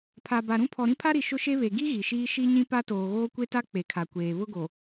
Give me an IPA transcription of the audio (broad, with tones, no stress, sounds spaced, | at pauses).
pʰ a˨ b a˨ ɾ ũ˦ pʰ ɔ˨ ɾ ĩ˦ pʰ a˦ ɾ i˨ ʃ ʊ˦ ʃ e˦ β e˨ ɡ i˦ ɣ i˨ ʃ iː˦ ʃ i˦ ɲ ĩ˦ p a˦ t oː˨ ɣ oː˦ kʷ e˦ t a˦ k͡p e˨ kʰ a˨ kʷ eː˨ β ʊ˦ ɡ o˨